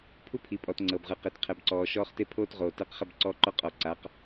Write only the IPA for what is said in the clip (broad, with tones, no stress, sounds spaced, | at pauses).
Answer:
pʰ u˦ pʰ i˨ pʼ ɔ˨ t ŋ͡ǀ ɤ˨ b ʁ ɯ˨ q e˨ t qʰ ɛ˨ b ǀ ɔː˨ ʃ ɔː˦ χ t e˦ pʰ oː˦ t ʁ oː˨ t ɛ˦ q χ ɛ˦ b ǀ ɔː˦ ǃ ɔ˦ qʼ ɔ˨ ǀ a˨˦ q